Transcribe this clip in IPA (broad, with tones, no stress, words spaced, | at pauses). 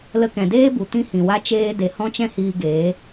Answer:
lə˧kɛ̃˨deː˦bu˨ tĩ˦hĩ˨wa˦ t͡ʃeː˦ de˨˦hɔ̃˦t͡ʃɛ̃˦hiː˧ ɡeː˨˦